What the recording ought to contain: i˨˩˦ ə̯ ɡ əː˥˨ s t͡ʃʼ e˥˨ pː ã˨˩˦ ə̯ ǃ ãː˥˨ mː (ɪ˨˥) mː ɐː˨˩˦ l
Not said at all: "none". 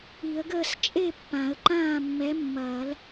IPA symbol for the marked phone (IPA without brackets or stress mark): ɛ˨˥